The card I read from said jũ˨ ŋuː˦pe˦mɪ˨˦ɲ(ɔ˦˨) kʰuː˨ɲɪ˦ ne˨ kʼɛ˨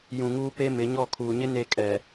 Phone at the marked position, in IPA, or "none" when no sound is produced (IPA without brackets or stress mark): ɔ˦˨